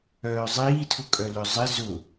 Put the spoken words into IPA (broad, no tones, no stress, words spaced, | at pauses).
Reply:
œːzˤiːtʰʊkʼœ lœzˤɪ zʊ